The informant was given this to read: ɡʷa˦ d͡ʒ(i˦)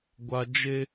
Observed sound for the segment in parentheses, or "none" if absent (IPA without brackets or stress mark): e˦